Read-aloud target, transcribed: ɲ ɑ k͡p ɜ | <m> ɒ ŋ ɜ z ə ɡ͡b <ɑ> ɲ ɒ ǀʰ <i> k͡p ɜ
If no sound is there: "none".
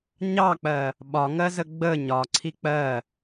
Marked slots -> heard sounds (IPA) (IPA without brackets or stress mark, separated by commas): ɓ, ə, i